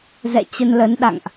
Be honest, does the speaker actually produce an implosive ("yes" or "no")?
yes